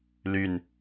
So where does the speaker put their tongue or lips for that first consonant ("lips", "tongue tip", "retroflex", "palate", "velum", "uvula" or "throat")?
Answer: tongue tip